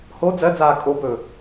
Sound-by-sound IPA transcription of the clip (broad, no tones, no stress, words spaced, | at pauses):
ho d͡zɜd͡zaː kʼobɵː